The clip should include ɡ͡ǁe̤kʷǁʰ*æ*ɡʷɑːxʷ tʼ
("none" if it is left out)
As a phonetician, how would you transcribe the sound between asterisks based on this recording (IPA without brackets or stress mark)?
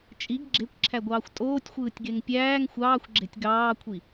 æ